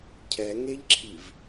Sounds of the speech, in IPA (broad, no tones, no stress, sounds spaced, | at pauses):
cʰ ɛ ŋ e ʎ ǁʰ i v